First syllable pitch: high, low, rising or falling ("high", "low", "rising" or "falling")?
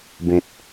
low